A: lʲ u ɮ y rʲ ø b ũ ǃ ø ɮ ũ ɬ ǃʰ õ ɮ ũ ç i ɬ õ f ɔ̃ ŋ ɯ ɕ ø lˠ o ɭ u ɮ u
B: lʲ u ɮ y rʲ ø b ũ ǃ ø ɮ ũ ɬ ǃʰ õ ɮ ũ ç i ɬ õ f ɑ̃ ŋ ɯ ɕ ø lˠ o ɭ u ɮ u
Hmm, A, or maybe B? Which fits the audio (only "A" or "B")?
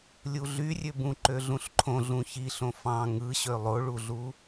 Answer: B